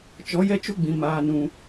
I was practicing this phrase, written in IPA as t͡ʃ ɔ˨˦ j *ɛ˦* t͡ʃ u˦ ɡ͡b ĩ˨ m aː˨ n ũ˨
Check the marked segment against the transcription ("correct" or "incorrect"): correct